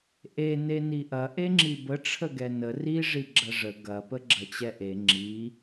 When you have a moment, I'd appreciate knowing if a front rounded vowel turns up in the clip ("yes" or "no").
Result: no